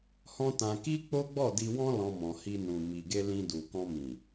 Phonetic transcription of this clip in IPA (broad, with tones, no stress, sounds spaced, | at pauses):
h ɔ̃˦ t ã˧ k i˦ k͡p o˦ ɡ͡b ɔ˦˨ d i˧ w ɔ̃˦ l ɔ̃˧ m ɔ̃˨ h i˧ n ũ˨ m i˨ ɡ e˧ l ĩ˧ d u˨ k ɔ̃˧ m ĩ˨